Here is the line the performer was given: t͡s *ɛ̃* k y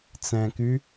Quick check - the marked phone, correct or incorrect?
correct